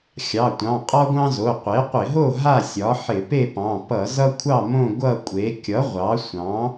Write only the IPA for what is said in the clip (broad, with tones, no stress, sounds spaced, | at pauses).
xʲ ɑ˩˧˩ tʷ ɑ̃˩˧˩ qʼ ɒ˦ ɡʷ ɑ̃˦ z o˩˧˩ qʷ e˩˥ qʷ ɪ˧˩˧ ɦ o˥˨ ɦ a˥˨ sʲ ɒ˩˥ ħ ɪ˧˩˧ p e˥˨ p ɑ̃˩˧˩ p ʌ˧˩˧ z ʌ˦ kʷʰ ɑ˥˨ m õ˥˨ ɡʷ ʌ˥˨ kʷʼ e˩˥ kʲ ʌ˩˥ ʁʷ ɑ˩˥ sʷ ɑ̃˩˥